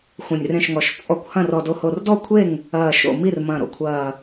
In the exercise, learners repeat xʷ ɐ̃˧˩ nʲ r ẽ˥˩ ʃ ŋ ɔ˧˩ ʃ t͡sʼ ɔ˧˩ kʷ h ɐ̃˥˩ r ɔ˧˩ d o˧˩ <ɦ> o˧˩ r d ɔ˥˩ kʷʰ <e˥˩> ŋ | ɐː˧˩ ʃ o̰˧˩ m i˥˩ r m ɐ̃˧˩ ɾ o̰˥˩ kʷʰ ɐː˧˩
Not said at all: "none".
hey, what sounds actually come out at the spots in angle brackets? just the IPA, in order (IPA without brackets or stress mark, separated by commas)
h, e˥˩